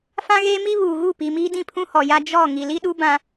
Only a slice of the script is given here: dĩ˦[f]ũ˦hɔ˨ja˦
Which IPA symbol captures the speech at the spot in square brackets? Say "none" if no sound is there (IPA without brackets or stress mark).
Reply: pʰ